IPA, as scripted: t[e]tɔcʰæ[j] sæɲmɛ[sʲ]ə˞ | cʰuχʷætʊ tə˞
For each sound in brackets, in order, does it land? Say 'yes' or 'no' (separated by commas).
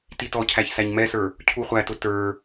no, no, no